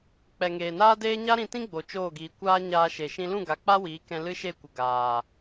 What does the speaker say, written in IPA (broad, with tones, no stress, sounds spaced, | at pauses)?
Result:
k͡p ɛ˨ ŋ eː˨ n aː˦ d eː˦ ɲ a˦ ɾ ĩ˧ t ĩ˦ ɡ͡b o˨ t͡ʃ oː˦˨ ɡ iː˨ kʷ aː˦ ɲ aː˧ ʃ e˨ ʃ ĩ˧ l ũ˦˨ ɡ a˨ k͡p a˦ w iː˨˦ k ɛ̃˧ l ɨ˦ ʃ e˦˨ kʷ ə˨ ɡ aː˨